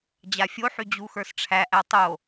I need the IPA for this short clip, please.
d͡ʑ a fʲ o ħ y d͡ʑ u x ə˞ s ʈ͡ʂʰ æ ʔ æ tˤ o

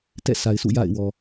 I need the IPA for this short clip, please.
t ɛ̰˦˨ s a˨ ɪ̯ s ṵ˦˨ j a̰˦˨ ɪ̯ w ɔ˨

